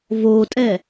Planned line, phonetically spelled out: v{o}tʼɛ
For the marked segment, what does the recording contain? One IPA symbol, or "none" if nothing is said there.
o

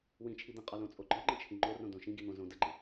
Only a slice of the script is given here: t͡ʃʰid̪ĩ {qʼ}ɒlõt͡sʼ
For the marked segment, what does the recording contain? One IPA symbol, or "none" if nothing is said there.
qʼ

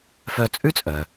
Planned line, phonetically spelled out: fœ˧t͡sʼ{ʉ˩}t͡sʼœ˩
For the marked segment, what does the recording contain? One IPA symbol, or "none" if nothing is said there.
ʉ˥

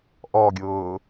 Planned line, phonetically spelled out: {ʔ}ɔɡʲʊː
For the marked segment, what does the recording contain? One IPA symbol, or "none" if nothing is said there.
ʔ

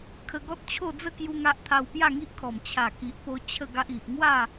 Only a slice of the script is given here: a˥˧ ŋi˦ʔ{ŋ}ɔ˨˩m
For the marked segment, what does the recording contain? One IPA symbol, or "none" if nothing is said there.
kʰ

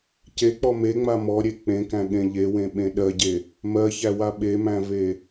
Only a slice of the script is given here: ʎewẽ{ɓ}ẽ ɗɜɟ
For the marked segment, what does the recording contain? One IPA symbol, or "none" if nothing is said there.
ɓ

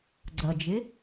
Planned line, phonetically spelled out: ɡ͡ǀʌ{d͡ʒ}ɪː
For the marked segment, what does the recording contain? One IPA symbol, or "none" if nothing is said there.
d͡ʒ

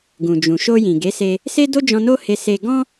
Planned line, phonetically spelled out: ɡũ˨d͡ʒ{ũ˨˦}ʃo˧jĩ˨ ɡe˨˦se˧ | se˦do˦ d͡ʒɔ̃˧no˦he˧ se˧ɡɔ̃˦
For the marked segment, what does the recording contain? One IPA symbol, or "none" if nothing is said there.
ũ˨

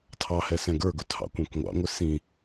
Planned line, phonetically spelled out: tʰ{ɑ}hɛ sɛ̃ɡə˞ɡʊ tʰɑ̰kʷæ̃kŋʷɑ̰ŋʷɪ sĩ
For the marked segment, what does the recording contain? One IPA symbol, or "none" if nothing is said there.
ɑ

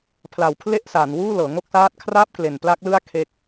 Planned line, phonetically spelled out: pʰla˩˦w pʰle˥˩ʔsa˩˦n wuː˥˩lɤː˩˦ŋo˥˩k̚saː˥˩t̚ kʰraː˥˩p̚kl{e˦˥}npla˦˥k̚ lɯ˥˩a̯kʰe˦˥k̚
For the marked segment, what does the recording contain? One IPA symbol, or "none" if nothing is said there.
e˨˩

